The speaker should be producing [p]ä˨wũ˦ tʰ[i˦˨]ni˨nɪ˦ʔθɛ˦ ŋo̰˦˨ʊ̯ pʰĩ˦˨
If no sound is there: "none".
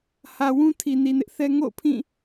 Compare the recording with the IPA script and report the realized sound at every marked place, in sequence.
h, i˨

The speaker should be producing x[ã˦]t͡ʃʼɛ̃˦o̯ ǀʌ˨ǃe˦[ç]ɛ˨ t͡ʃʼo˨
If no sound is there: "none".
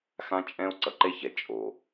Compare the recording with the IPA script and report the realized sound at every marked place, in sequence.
ã˦, ç

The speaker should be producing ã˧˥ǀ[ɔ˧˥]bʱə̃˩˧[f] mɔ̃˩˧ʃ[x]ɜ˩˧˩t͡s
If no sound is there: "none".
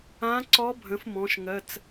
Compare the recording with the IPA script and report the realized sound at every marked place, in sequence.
ɔ˧˥, f, ŋ

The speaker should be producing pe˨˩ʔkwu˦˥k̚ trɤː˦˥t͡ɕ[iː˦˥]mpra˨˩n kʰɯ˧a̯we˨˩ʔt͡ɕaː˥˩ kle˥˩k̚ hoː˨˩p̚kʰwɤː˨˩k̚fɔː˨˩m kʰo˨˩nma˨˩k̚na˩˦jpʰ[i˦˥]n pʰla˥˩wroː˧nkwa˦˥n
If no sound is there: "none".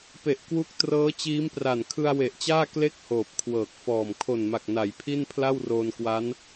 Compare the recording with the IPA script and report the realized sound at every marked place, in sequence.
iː˦˥, i˥˩

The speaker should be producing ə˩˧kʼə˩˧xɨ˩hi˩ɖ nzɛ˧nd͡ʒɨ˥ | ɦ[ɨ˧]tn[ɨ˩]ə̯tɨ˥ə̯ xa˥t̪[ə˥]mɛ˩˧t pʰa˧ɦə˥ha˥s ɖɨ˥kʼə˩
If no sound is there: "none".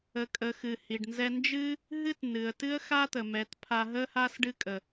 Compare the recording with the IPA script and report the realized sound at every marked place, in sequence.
ɨ˥, ɨ˩, ə˩

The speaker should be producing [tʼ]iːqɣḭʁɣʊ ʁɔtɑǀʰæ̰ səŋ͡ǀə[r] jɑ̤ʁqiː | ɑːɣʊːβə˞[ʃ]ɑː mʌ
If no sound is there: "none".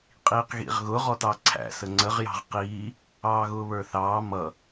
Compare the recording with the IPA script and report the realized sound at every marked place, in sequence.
qʼ, ʁ, θ

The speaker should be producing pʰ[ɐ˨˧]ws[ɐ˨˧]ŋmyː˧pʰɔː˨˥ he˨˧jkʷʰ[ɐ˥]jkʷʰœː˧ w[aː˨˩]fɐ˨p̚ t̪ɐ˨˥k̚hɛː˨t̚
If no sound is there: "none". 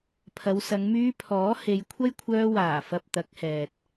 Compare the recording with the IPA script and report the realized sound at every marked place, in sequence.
ɐ˨˧, ɐ˨˧, ɐ˥, aː˨˩

